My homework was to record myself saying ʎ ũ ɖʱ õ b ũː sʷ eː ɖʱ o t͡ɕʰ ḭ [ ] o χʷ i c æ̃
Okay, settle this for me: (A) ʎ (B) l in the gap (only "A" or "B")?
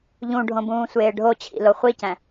B